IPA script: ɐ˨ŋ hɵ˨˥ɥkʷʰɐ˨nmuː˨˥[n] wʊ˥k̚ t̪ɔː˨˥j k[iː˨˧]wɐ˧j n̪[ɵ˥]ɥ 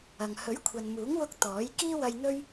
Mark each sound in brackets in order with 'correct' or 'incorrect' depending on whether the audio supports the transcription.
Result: incorrect, incorrect, correct

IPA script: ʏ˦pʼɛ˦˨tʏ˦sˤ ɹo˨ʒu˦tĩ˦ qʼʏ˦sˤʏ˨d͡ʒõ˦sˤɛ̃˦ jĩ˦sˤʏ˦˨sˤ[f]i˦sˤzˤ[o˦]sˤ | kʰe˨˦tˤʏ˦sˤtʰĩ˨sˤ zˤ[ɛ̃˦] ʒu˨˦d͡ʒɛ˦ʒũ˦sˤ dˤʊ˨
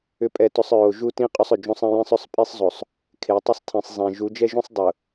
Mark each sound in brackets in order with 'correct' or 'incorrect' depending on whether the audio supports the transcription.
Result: incorrect, incorrect, incorrect

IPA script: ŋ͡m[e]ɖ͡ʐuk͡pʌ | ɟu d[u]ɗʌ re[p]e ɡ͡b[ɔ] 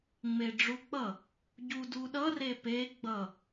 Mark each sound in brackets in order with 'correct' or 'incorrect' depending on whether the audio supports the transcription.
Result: correct, correct, correct, incorrect

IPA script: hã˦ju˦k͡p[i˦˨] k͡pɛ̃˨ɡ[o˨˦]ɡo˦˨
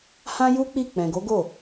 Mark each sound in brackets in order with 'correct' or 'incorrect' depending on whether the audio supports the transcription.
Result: correct, correct

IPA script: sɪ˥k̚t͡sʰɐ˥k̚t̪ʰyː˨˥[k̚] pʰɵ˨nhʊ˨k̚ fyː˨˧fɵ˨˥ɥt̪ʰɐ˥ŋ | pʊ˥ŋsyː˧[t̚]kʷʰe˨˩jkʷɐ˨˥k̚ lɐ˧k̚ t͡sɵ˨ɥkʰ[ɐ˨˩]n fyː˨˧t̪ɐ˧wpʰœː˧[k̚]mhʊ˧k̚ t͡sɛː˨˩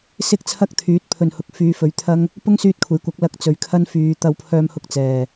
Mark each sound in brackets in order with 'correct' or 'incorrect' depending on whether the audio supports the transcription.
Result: incorrect, correct, incorrect, incorrect

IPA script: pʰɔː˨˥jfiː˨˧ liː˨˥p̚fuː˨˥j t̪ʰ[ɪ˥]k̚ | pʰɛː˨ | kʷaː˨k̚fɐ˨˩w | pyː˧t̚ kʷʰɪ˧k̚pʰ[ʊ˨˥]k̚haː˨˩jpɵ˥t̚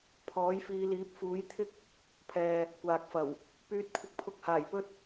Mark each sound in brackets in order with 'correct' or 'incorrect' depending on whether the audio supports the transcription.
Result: correct, incorrect

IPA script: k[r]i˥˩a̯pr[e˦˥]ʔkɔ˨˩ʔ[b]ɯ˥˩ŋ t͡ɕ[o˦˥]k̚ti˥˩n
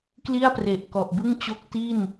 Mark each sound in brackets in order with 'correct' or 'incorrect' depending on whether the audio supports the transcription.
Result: incorrect, incorrect, correct, correct

